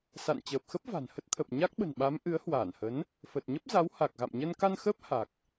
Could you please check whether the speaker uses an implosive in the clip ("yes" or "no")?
yes